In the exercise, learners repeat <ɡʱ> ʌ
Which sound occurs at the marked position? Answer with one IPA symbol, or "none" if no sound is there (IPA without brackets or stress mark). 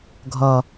ɡʱ